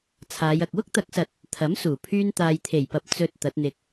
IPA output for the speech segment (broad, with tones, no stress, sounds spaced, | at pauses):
t͡sʰ aː˨˧ j ɐ˨ k̚ w ʊ˥ k̚ t̪ ɐ˨˥ k̚ s ɐ˨ t̚ | t̪ʰ ɐ˨˥ m s uː˨˩ pʰ yː˧ n t̪ aː˨ j t̪ʰ e˨˩ j p ɐ˨ p̚ t͡s ɵ˨ t̚ t̪ ɐ˨˥ t̚ n̪ ɪ˧ k̚